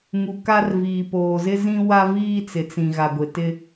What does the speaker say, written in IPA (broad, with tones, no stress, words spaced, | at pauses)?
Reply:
ŋu˨ka˦rviː˨poː˨ zɪ˦zĩ˦ wa˦viː˦t͡sɪ˨t͡sĩ˨ ɣa˨ɡʷɪ˨ tɪ˦